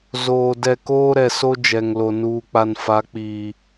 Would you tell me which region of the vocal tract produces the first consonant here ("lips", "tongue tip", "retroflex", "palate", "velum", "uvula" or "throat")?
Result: tongue tip